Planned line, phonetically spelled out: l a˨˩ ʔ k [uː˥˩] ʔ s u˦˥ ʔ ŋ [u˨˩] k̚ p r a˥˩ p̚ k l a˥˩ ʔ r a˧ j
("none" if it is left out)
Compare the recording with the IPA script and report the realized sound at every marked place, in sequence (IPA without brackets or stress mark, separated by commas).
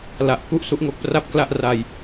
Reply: u˥˩, o˨˩